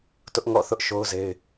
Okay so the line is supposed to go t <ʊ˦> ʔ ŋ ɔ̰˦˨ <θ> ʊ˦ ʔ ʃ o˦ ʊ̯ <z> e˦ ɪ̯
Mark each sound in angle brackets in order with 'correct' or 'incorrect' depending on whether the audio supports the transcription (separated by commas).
correct, correct, correct